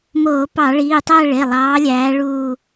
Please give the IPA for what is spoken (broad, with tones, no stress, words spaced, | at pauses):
moː˧˩˧pɑ˧˩˧ɭiː˩˧˩tˤæ˥˧ ɭe˩˧˩lˠɑː˨˦lʲæː˨˦ ɭuː˥˧